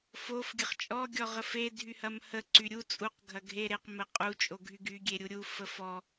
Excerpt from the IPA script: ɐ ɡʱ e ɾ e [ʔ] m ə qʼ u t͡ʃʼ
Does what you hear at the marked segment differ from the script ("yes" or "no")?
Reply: yes